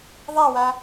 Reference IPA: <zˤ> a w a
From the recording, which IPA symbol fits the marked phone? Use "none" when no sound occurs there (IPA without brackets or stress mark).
ðˤ